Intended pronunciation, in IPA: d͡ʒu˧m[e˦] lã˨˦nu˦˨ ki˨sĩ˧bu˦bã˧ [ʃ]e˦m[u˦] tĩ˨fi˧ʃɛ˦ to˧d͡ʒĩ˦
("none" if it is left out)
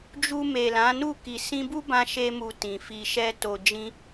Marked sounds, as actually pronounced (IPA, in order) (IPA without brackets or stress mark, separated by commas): e˨, ʃ, u˧